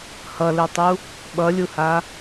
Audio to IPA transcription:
hʌlɛtˤu | ɓʌlʲuha

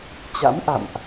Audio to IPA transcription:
t͡ɕa̰˧˥mʔa̰˧˨mʔ

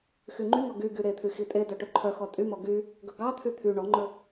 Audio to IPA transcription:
xyŋ͡ǃyŋɔ ɡy ɡyɾet̪ʰy xitʼedœ ʈɵǃʰœxɔ tʼymɔ ɡy | ɡɵɡɑt̪ʰy t̪ʰy ɳɔŋ͡ǃɵ

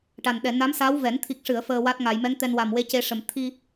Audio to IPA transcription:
ʈa˨˩nɗɛ˨˩˨ na˧˥msa˧˥w vɛ˨˩˦n t̪ʰi˨˩k̚ʂɨ˨˩˨ə̯ fəː˧wa˦˥t̚ŋa˨˩˨j mɛ˧˥ŋt̪ɛ˧n wa˨˩mwe˧˥ce˧ʂə˨˩m t̪ʰi˧

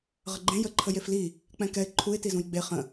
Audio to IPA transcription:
ʁəɡ͡ǃẽ jə ǃʰəjefli | k͡pɛ̃kɛɪ̯ ǃʰuɪ̯ tizũjɡ͡be χə̃

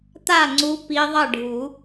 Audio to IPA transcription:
t̪a˥˩ŋ͡ǀu˨˦ pi˨˦ðˤʌ˥˩ ɖʱu˨˩˦

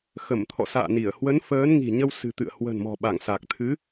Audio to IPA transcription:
xə˧˩mt̪ʰɔ̰˧˨sa̰ː˧˨ni˧˩ə̯ hwə˨˦nfəː˨˦nŋi̤˨˩ɲə˧w sɨ̤˨˩t̪ɨ̰˧˨ə̯ hwə̤˨˩nmɔ̤˨˩ɓa˧˩ŋ sa˨˩k̚t̪ʰɨ˨˦

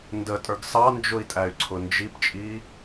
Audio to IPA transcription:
ndətʼə˞ɡ sɑnd͡ʒʊi̯tʼæy̯ǀʰʊ nd͡ʒipt͡ʃʼi

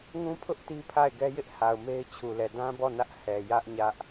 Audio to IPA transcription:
ŋũ˦pʰʊ˦ʔ ti˦pʰa˦˨ɪ̯ɡɛ˦jɪ˦ʔ ha˨ʊ̯me˦ɪ̯t͡ɕʰu˨lɛ˨ dã˦bɔ˦˨ nä˦ʔ hɛ˨jä˦ʔ ɲä˦ʔ

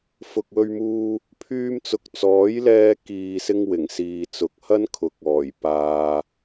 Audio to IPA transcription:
fʊ˨k̚wɵ˧ɥmuː˧ | pʰyː˧mt͡sʊ˨˥k̚t͡sɔː˨˥j lɛː˧ kiː˨sɪ˧ŋ wɪ˨˩ŋsiː˨t͡sʊ˨k̚ hɐ˥nkʰʊ˨˥k̚ɔː˨˩j paː˨

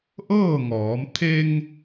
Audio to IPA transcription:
ʔɤː˥˨ŋɔː˩˧m t̪ʰe˧ŋ

